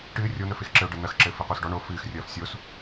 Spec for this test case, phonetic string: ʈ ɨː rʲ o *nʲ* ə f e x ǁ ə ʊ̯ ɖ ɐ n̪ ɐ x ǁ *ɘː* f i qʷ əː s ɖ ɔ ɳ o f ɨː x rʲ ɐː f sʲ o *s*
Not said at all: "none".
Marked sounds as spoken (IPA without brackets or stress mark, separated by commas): n̪, ɘː, s